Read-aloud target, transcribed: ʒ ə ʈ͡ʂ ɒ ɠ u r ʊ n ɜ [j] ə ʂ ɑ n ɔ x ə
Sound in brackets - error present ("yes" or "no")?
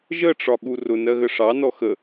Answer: yes